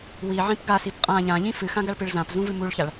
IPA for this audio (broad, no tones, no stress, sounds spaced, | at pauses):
w i ʕ ĩ p ɡ a s i p qʼ ã ʎ ã ʎ ĩ f ɨ x ã ɡ a ɭ p ɨ ɭ z ã p z ũ v ɨ m u ɭ ç a ɭ